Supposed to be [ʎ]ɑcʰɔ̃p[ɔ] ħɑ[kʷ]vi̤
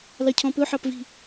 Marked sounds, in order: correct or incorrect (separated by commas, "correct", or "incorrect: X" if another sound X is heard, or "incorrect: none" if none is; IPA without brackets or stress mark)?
incorrect: l, incorrect: ɵ, incorrect: p